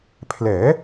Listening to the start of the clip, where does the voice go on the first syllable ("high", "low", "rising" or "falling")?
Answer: rising